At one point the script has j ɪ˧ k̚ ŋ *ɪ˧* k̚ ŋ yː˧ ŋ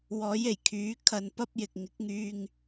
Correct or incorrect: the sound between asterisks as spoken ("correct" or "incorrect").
incorrect